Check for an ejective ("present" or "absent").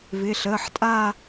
present